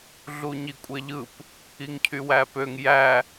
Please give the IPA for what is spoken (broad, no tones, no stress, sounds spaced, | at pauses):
ɮ u ɲ i kʷʼ e ʎ ɯ p | i ŋ cʰ y w æ p ø ŋ j æ